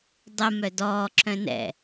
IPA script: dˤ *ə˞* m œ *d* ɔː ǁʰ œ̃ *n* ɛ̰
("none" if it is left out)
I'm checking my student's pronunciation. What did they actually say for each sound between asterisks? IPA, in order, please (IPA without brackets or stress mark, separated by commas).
ə, d, n